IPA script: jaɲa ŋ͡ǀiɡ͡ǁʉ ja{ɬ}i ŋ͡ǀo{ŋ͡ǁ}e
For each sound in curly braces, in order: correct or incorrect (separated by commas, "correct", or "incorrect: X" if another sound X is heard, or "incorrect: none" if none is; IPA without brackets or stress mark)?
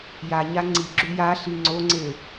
correct, incorrect: ŋ͡ǀ